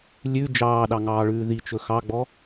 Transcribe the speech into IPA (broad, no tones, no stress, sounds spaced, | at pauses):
lʲ ʉ d͡ʒ ɑː ɗ ɑ ŋ ɑː ɭ ʉː ð i t͡ʃ ɵ x ɑ ɡ͡b ɔ